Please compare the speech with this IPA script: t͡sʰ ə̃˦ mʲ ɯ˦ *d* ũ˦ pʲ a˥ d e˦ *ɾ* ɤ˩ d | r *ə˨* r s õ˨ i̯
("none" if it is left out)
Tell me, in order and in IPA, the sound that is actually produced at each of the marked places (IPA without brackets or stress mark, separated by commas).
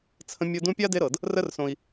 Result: d, ɾ, ə˦